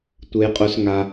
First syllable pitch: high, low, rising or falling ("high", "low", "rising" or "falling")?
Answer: low